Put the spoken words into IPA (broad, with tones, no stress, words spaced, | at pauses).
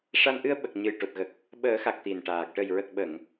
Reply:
ʂa˧nʔɨ˧ə̯ɓə˨˩k̚ ɲɨ˨˩jʈo˨˩t̚ɣə˨˩k̚ | ɓəː˨˩˦xa˨˩k̚ t̪i˨˩nʈaː˨˩k̚ ʈə˨˩jɹə˨˩k̚ɓə˨˩˨ŋ